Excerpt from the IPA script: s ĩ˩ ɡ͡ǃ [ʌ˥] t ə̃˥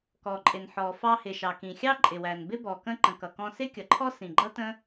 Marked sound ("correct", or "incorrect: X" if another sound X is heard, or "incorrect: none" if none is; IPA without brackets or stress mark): correct